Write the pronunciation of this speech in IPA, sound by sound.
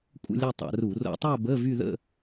kʷʼ ə̰˥˧ lʲ ɐ˥˧ tˤ a̰˧˩˧ r u˧˩˧ r o̰˧˩˧ tˤ a˥˧ b ə˧˥˧ v y˥˧ ð ə̰˥˧

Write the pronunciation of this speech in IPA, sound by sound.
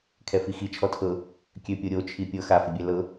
kʰ ɛ f i x i t͡ʃʰ ɔ tʰ ɤ | kʲ ø pʲ o ɾʲ o t͡ʃʰ i pʲ ɤ x a f ɘ bʲ ɛ l ɤ

